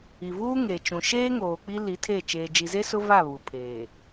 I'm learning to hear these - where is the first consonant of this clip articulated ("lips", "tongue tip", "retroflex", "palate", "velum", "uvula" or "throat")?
lips